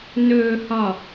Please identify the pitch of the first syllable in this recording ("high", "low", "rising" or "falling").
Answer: low